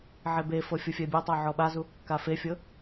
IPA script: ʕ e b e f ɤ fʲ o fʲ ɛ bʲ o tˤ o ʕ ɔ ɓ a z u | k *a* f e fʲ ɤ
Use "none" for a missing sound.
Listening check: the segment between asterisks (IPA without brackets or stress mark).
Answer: a